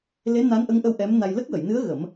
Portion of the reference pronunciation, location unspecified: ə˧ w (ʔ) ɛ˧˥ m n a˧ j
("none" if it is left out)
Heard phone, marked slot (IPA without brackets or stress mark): ʔ